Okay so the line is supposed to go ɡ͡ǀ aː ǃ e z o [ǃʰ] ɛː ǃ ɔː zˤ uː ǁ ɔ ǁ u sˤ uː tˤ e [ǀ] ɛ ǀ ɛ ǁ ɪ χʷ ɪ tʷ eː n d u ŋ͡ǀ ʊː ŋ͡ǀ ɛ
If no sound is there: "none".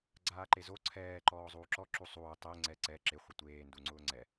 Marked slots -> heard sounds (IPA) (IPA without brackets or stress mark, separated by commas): ǀʰ, ŋ͡ǀ